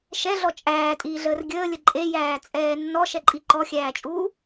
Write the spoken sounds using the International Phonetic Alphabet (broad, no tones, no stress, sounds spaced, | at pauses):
ʃ ɛ ɮ ɔ t͡ʃʼ æː tʼ iː ɮ əː r ɡʲ əː lʲ ə ǃʼ e j æː t͡sʼ ɛː nː ɔ ʃ ɛ ǃʼ i ǃ ɔ xʲ æː t͡ʃʼ uː